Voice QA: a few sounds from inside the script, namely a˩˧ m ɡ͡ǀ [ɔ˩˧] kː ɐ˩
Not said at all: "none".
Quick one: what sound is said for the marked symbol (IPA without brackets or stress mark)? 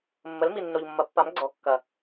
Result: ɔ˩˧